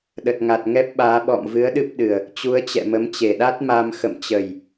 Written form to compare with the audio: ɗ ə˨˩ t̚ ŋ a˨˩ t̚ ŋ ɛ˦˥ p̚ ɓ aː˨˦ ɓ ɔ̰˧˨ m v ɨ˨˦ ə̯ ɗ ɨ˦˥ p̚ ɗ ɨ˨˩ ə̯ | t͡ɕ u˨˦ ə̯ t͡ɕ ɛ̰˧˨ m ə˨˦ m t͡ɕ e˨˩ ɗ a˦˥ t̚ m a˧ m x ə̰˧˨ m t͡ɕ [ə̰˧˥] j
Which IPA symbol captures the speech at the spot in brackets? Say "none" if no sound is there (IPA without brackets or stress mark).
ə˨˩